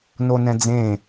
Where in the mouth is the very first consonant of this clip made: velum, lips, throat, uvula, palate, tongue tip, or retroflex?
tongue tip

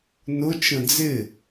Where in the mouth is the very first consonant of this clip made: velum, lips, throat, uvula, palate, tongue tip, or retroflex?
tongue tip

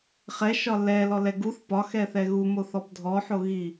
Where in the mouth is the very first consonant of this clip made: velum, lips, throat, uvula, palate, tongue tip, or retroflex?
uvula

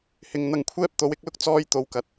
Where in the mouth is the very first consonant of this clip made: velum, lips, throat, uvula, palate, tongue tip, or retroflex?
throat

